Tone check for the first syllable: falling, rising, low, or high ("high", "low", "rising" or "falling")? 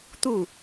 falling